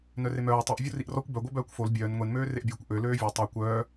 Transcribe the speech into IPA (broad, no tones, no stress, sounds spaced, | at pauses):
n œ r e m œː tˤ i ʔ vʲ o r i ʔ r ɔ kʷ b œ ɡʷ œ b œː kʷ f o l bʲ œː n ŋʷ e n m øː r e ʔ bʲ oː kʷ ʔ ø l øː vʲ ɛ tˤ ø kʷ œː